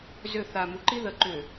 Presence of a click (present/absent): present